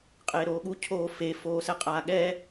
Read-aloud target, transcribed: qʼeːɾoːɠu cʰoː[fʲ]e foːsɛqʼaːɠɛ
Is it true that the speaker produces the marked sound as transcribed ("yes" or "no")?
no